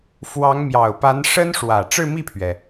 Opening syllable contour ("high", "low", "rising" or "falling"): rising